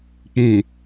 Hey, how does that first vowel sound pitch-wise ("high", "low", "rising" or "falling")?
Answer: low